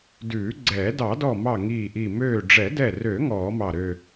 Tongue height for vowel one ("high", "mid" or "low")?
high